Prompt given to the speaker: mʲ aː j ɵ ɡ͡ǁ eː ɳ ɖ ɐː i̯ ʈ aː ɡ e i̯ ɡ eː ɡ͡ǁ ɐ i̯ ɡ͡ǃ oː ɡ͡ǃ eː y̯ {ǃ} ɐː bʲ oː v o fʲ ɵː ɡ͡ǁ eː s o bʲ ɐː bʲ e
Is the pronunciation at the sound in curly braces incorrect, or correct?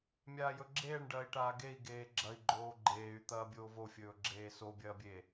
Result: incorrect